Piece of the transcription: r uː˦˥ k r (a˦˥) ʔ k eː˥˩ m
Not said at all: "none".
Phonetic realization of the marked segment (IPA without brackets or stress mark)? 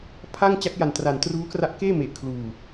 a˦˥